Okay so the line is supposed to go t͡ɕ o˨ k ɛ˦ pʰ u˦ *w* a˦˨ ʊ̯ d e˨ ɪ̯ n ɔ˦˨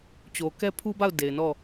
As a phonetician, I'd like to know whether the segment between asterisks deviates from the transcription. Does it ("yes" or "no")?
yes